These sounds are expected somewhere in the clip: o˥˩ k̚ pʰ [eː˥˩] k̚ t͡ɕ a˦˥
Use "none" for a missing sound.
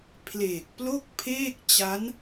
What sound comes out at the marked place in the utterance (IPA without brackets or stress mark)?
eː˥˩